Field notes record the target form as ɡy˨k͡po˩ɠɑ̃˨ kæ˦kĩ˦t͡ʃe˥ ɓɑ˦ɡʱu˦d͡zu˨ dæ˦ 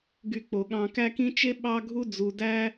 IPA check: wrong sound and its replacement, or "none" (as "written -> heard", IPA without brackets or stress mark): none